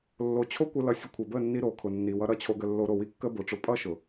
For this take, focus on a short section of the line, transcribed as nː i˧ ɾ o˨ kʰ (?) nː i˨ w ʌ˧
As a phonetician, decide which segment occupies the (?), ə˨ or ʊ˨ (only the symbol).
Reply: ʊ˨